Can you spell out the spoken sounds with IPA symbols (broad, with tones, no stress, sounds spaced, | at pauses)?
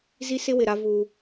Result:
z i˦ s ɪ˦ w ɪ˨ ɾ a˦ v u˦